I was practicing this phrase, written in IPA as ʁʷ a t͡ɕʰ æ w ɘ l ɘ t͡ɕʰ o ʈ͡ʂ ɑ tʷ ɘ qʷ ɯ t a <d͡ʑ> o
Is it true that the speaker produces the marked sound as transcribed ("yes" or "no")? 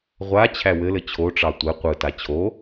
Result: no